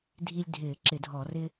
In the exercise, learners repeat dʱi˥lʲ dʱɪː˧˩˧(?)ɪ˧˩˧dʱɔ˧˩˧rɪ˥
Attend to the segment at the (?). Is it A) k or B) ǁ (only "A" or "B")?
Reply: B